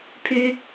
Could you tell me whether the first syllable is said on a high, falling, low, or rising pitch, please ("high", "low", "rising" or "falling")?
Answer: high